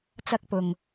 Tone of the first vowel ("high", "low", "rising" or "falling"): high